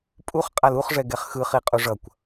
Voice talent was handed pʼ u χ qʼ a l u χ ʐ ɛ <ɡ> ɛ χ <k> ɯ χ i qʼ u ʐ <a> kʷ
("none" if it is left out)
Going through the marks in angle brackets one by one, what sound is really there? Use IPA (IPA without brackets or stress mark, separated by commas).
ɡ, x, ʌ